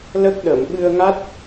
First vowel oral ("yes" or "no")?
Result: yes